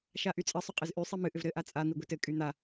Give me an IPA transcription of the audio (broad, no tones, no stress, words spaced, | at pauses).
ʃaʔyt͡sʼɘsˤʏ qʼɘzʔy sˤimɨʔʏv ɾɘʔa t͡sʼa n̪iɡʷitɘ kʼyn̪a